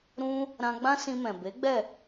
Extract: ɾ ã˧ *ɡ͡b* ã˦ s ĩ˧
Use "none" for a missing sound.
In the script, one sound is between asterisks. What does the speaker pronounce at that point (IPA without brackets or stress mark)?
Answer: ɡ͡b